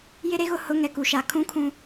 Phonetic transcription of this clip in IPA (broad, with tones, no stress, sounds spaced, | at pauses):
j ɪ˦ ɾ e˦ ɣ ʊ˦ h ʊ˨˦ ŋ ɛ˨ k u˨ ʃ a˨ kʰ ũ˦ kʰ ũ˦